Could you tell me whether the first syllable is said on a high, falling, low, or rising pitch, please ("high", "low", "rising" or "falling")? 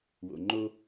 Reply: low